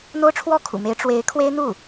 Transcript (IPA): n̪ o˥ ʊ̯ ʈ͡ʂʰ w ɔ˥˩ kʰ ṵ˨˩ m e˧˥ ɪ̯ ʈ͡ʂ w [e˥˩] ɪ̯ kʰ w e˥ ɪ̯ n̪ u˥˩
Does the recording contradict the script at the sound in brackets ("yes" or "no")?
yes